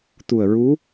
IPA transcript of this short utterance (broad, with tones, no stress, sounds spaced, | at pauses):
t̪ u˨˩ ə̯ ɹ u˧˥